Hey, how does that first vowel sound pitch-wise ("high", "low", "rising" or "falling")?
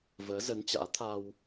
rising